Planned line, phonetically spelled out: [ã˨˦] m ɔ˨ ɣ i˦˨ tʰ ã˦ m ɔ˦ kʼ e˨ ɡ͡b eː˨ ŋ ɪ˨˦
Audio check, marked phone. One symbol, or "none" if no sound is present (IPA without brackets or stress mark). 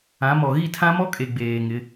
ã˨˦